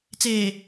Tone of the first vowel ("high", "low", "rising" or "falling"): low